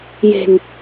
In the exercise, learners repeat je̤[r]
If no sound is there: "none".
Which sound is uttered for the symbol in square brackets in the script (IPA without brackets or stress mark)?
n